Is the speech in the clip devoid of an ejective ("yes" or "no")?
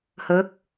yes